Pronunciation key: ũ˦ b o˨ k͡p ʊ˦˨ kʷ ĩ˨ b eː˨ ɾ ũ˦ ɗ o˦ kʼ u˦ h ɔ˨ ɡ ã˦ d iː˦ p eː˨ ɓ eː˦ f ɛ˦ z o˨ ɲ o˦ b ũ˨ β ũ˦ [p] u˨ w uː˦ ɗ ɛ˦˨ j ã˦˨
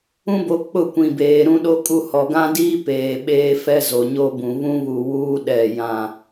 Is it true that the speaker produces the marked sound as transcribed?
no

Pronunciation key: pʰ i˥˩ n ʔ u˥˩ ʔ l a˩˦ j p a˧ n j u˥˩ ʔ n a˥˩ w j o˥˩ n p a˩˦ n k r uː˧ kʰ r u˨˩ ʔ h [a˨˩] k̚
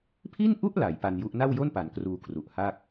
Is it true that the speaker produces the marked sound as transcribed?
no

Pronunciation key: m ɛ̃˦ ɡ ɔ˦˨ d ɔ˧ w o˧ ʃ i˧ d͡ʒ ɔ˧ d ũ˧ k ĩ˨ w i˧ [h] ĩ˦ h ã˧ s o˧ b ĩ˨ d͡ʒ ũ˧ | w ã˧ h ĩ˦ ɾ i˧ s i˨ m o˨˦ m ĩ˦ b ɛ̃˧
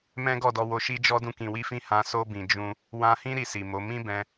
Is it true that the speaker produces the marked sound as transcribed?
no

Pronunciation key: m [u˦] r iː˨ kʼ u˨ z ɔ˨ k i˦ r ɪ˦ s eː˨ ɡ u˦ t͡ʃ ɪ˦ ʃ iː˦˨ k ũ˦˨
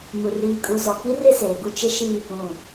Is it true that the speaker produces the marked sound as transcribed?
no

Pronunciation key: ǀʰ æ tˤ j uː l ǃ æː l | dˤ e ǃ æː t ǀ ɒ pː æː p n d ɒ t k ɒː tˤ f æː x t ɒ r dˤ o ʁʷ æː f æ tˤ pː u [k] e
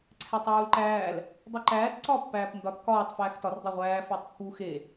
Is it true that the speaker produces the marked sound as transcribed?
no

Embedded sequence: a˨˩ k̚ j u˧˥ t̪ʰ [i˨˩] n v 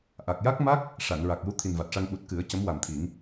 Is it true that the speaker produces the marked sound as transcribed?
yes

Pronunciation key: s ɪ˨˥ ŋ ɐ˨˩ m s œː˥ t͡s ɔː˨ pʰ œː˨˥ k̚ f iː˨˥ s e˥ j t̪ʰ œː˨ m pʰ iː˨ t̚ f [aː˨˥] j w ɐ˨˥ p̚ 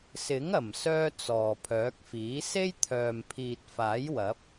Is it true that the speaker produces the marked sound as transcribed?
yes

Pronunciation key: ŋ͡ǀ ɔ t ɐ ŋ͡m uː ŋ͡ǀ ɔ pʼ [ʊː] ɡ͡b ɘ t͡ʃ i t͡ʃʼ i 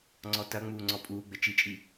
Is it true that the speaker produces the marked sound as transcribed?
no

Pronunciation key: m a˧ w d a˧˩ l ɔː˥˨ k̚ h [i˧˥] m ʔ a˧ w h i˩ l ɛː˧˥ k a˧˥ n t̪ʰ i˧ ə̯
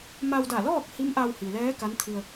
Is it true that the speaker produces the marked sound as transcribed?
yes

